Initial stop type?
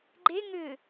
click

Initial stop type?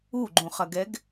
click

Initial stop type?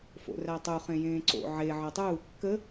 plain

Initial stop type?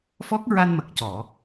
plain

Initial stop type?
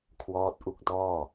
aspirated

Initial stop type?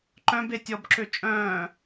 click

